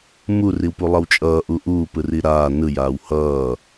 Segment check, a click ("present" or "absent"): absent